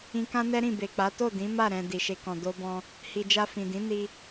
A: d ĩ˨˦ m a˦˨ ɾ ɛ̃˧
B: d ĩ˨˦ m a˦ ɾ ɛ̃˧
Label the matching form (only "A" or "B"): A